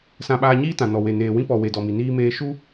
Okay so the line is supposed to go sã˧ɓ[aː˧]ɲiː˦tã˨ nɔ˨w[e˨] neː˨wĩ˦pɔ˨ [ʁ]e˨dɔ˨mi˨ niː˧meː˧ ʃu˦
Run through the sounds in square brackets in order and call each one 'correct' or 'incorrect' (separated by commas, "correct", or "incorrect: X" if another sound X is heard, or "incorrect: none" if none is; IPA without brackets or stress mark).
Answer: correct, correct, incorrect: w